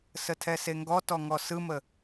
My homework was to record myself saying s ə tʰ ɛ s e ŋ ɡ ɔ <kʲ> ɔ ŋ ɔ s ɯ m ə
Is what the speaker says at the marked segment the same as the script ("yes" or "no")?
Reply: no